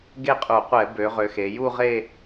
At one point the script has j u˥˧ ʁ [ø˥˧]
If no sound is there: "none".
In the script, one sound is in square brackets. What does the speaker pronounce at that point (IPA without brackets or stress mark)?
e˥˧